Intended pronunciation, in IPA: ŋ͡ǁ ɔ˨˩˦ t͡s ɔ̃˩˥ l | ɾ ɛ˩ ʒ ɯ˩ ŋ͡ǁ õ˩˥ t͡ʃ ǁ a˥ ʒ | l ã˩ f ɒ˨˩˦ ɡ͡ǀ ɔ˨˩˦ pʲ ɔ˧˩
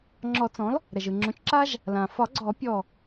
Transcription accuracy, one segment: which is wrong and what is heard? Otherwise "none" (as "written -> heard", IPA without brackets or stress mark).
none